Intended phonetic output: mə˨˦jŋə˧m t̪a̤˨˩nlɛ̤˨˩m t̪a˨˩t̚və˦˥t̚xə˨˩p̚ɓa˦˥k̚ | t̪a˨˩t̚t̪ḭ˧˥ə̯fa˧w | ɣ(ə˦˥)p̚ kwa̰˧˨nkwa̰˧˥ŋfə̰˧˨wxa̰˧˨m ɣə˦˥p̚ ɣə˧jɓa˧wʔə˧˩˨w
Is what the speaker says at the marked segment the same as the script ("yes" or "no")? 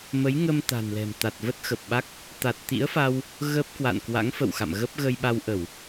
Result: yes